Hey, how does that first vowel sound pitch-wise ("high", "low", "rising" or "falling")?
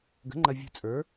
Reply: rising